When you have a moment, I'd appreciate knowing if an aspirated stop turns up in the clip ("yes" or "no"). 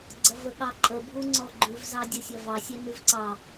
no